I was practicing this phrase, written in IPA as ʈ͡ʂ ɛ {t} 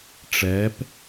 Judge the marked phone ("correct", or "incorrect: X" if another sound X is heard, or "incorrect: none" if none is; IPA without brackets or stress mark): incorrect: p